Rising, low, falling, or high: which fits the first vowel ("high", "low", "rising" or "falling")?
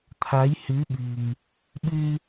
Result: rising